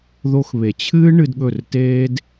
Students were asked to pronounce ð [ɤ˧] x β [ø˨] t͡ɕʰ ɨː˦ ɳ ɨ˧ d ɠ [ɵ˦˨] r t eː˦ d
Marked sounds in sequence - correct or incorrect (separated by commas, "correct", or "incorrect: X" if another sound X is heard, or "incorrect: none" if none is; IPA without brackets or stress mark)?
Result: incorrect: o˧, incorrect: e˨, correct